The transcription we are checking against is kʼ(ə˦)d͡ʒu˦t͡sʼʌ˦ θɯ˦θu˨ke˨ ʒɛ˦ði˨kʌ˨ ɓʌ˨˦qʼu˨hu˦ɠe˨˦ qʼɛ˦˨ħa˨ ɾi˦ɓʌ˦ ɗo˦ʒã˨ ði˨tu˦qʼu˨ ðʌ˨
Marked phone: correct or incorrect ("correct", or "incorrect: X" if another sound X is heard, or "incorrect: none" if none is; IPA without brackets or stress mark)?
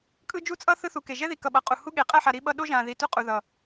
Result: incorrect: ɯ˦